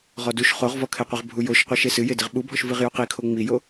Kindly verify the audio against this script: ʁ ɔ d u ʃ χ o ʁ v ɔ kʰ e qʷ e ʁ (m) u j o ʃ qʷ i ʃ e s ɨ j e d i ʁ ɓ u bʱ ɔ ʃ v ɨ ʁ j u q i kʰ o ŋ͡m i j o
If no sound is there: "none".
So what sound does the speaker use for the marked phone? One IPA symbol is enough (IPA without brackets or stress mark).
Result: bʱ